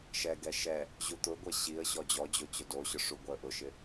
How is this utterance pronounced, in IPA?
ʃ ɛ ɡ ɛ ʃ ɛ | ʑ u t̪ ʊ ɡʷ ɛ ɕ i ə̯ ɕ ɔ d͡ʑ ɔ d͡ʑ o t͡ɕ ʊ d o ɕ ʊ ʂ u ɡʷ ɛ ə̯ ʔ ʊ ʃ ɪ

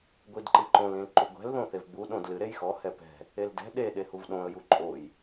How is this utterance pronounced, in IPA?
ɡʷ i d ǃ ɨ ǃ õ l ĩ l ǃ u ɡʷ ɛ̤ l ð õ θ e v ɡ͡b u ɗ õ d l ɨ ɾ e j x ɔ h ɛ p ɛ̤ | e l d ɛ̤ ɗ e ɗ e h u v ɗ õ ə̯ j u ǃʼ o j

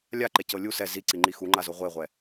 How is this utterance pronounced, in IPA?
lʲ a ǃ e c ɤ lʲ u s ɛ z i ǀ i ŋ͡ǃ i x u ŋ͡ǃ a z o ʁʷ e ʁʷ ɛ

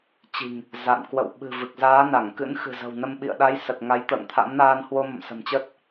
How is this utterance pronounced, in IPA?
t͡ɕ i̤˨˩ ŋ | z a̰˧˨ n k w ə̰˧˨ w ɓ ɨ̤˨˩ v ɨ˨˩ k̚ z aː˨˦ n a˧˩ ŋ k ɨ̰˧˥ n x ɨ̤˨˩ z ə̤˨˩ w n ə˧ m ɓ ḭ˧˨ ə̯ ɗ a˨˦ j s ə˨˩ t̚ ŋ a˨˦ j t̪ ə̰ː˧˨ ŋ t̪ʰ a̰˧˥ m n aː˧ n h w o˧ m ə̰˧˨ m s ə̤˨˩ m t͡ɕ ə˦˥ t̚

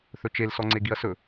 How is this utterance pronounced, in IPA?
θ ɵ t͡ʃ e l s ɔ ŋ͡ǀ e ɡ i ɐ̯ s ɵ

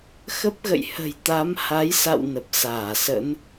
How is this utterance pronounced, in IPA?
x ə˦˥ p̚ ɣ ə̰˧˨ j h ə̤˨˩ j t̪ a˨˦ m h a˨˦ j s a̰˧˨ w n ə˨˩ p̚ s aː˧˩ s ə̰˧˥ n

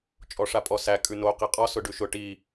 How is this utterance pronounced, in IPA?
t͡ʃʼ ɔ ʂ a pʼ ɔ s æ kʼ ʉ n o q i qʼ ɔ s ʊ ɖ ʉ ʃ ʊ ʈ i

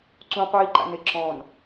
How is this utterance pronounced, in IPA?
ǀ ũ qʷ iː ǃ a̰ n ɪ ǁ ɔ̃ n

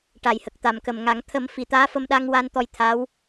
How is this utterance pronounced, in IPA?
ʈ a˨˩˨ j h ə˨˩ k̚ t̪ a˨˩ m k ə˨˩ m ŋ a˨˩˦ ŋ t̪ʰ ə˨˩˦ m f i˨˩˨ t̪ aː˧˥ f ə˧ m ɗ a˧ ŋ w a˧ n t̪ ɔ˧ j t̪ʰ a˧˥ w

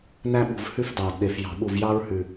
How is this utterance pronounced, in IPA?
n æ˦ ɓ ṳ˨˩ v h ʉ˦ f d ɑː˨˩ d ɗ e˨˩ f j ɑ̤˨˩ ɓ u˨˩ v j ɑ˦ ɹ h ʉ˨˩

